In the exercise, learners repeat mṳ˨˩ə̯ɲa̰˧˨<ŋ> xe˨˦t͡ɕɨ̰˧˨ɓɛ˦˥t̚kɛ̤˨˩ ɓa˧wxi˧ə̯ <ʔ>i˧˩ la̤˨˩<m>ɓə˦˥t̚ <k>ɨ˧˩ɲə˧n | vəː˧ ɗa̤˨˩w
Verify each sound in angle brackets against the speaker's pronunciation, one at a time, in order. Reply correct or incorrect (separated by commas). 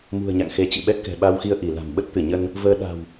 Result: correct, correct, correct, incorrect